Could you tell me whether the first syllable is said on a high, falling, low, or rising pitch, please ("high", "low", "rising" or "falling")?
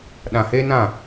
low